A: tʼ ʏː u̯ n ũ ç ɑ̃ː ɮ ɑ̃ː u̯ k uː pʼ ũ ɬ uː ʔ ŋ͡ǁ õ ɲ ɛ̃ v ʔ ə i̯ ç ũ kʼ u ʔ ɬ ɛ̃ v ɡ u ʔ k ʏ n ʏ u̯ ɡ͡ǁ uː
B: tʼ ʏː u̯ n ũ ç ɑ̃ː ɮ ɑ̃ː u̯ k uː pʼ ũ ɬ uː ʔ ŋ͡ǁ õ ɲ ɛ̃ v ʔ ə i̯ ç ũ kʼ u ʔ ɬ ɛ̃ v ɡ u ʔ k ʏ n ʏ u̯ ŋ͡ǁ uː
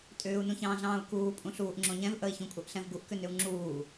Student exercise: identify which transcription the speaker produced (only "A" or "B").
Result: B